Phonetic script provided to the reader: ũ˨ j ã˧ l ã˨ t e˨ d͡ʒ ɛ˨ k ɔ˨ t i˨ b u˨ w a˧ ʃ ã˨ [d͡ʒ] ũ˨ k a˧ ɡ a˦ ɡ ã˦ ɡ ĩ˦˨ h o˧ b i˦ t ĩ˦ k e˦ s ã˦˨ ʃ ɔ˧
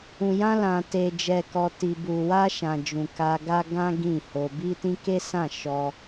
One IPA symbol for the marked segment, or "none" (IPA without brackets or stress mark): d͡ʒ